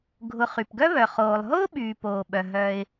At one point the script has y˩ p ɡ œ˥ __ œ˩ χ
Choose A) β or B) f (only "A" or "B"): A